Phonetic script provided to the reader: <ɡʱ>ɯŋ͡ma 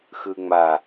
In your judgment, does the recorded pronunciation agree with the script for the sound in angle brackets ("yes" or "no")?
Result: no